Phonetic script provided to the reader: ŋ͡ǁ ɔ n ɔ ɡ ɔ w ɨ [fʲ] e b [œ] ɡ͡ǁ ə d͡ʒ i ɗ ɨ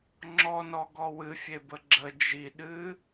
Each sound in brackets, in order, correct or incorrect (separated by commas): correct, incorrect